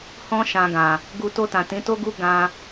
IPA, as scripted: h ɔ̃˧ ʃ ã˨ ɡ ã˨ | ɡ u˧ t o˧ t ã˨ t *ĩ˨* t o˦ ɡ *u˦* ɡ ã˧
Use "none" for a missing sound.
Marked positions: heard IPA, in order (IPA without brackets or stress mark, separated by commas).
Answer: ĩ˨˦, u˦